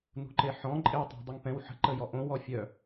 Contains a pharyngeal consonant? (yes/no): yes